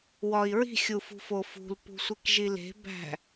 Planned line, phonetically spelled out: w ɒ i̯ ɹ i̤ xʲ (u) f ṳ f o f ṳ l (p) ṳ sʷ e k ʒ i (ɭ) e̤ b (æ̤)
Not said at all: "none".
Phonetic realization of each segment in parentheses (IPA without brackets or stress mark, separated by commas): u, p, l, æ̤